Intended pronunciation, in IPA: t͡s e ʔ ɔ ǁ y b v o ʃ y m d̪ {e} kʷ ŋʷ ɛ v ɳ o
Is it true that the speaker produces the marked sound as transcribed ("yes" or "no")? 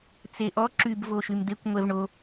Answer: yes